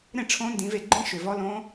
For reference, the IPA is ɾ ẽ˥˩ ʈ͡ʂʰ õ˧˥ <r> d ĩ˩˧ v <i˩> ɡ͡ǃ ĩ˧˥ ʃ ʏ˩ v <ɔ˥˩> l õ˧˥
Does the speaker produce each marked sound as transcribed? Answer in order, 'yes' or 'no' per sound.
no, no, no

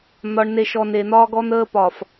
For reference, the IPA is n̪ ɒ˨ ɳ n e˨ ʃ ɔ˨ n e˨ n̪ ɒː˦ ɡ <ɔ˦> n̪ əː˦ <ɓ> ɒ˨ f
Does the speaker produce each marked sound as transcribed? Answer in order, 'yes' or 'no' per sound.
yes, no

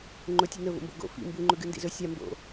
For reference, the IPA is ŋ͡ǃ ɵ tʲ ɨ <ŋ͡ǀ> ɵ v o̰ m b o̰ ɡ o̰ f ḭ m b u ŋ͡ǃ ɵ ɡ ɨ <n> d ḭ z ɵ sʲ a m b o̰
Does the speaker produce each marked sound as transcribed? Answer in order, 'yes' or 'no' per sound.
no, yes

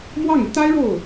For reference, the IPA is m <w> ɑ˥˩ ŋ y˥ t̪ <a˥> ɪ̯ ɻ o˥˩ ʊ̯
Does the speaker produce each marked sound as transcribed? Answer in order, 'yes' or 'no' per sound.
yes, yes

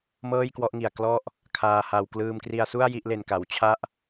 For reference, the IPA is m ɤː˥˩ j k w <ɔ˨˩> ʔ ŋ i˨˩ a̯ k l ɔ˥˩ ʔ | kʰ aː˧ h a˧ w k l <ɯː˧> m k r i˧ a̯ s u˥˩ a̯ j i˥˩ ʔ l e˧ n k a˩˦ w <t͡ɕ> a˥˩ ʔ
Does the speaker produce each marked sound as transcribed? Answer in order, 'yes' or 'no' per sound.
no, yes, no

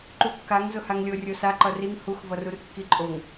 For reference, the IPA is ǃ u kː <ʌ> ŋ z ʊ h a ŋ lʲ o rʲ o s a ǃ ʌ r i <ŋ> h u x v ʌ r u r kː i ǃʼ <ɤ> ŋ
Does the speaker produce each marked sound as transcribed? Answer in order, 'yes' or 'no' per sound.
no, yes, no

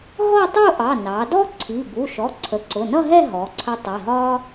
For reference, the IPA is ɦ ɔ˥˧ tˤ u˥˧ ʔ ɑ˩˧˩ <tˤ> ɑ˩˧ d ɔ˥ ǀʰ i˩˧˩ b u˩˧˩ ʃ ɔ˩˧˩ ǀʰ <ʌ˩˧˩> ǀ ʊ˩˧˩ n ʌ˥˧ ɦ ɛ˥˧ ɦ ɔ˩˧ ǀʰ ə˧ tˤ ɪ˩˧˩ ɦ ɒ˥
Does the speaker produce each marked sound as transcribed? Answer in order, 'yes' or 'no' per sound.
no, no

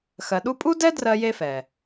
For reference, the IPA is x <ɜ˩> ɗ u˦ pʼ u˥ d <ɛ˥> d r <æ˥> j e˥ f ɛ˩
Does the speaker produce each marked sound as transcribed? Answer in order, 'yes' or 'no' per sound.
no, yes, no

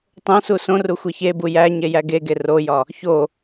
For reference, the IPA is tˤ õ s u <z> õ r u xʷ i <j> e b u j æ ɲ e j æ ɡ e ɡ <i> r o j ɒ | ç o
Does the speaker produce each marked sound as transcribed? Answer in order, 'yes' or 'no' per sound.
no, no, no

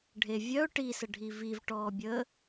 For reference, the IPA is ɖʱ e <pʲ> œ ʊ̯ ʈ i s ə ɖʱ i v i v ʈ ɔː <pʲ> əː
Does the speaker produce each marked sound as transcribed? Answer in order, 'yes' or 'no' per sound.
no, no

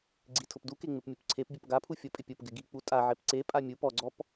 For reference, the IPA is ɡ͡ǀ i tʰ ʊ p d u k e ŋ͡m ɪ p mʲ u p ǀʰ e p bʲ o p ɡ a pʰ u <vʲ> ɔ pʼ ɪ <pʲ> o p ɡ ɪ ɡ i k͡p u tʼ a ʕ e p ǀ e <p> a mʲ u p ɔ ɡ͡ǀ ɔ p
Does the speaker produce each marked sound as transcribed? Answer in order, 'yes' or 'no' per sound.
no, yes, no

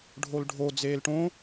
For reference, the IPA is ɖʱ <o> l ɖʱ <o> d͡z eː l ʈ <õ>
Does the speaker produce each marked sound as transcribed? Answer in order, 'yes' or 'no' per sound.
yes, yes, yes

